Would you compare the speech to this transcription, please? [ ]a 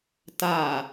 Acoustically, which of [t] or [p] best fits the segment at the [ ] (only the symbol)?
t